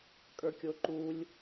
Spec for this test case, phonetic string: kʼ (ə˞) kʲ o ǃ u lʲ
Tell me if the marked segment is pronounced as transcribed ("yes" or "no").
yes